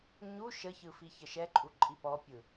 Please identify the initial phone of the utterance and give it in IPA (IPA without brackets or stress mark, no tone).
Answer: ɲ